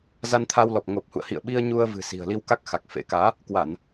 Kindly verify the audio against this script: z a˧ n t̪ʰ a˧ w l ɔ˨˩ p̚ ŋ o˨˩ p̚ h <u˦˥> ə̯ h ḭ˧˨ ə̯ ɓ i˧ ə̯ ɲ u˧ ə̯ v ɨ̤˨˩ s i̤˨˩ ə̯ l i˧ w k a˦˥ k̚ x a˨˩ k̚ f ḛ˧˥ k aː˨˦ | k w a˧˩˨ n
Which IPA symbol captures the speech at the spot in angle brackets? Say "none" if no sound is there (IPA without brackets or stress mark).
ṵ˧˨